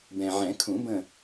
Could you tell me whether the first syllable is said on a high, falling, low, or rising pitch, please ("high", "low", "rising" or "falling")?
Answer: low